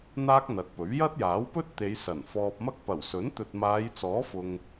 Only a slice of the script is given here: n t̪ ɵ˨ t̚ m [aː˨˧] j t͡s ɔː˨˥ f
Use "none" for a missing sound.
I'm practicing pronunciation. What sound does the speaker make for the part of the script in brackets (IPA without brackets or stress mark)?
aː˨˧